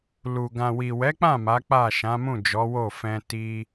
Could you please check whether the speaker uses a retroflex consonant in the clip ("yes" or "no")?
no